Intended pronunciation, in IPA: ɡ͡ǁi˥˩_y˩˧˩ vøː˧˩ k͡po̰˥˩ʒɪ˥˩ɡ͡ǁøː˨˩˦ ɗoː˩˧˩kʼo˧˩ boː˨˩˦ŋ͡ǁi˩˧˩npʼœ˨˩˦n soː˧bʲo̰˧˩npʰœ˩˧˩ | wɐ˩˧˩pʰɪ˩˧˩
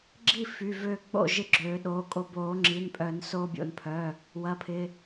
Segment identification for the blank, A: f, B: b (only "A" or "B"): A